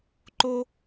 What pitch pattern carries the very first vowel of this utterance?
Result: high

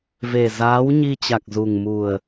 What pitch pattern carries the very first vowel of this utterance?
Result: low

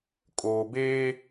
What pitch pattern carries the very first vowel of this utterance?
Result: low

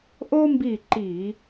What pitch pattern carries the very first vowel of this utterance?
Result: high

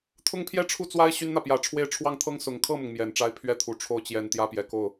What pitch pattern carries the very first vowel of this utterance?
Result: falling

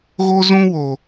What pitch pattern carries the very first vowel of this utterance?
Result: high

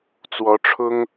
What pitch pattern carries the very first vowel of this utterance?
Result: rising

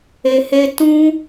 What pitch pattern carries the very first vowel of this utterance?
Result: low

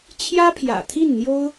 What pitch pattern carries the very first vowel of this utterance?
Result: high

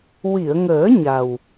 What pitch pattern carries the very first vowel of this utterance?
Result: low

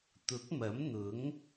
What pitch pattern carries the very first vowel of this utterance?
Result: rising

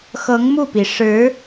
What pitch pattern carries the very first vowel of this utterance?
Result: rising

